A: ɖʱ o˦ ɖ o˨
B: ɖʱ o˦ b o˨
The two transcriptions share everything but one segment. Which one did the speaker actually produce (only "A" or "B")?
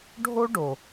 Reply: A